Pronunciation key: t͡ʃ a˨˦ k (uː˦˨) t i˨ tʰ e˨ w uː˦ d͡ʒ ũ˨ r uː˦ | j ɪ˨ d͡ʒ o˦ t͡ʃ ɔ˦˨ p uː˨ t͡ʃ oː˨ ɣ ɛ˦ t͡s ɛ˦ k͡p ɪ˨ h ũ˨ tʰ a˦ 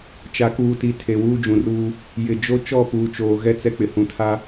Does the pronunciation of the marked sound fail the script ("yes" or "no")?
yes